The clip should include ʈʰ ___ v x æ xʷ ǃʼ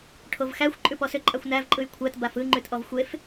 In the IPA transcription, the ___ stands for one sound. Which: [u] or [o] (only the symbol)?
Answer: o